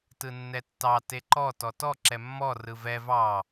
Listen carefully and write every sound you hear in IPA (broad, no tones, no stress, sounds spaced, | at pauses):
t ɯ nː ɛ tː ɑ t e ǃ ɔ t ɔ t ɔ ǁ ɛ mː ɔ r ɯ v ɛ v ɑ